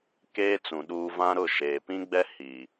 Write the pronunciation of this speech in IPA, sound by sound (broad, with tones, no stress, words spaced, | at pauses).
keː˦t͡sũ˨ ɗuː˦ vã˦ɾʊ˦˨ʃeː˨ pĩ˦ɡ͡bɛ˦ hi˨